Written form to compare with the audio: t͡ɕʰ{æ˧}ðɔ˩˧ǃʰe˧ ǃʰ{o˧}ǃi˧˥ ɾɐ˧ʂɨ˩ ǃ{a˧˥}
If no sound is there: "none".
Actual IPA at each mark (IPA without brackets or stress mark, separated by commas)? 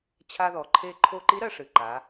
a˧, o˧, a˩˧